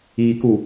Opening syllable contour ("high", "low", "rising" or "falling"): low